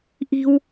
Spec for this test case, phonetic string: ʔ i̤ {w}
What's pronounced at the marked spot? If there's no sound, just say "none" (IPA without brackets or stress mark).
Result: w